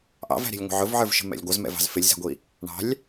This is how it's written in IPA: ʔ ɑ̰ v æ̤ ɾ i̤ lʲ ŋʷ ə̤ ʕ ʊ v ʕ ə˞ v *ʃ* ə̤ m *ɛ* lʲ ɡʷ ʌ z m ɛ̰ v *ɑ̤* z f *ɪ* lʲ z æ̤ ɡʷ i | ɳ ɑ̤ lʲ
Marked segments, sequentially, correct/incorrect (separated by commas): correct, incorrect, correct, correct